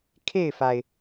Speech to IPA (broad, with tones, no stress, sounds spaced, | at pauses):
kʰ e˥˩ ɪ̯ f a˩ ɪ̯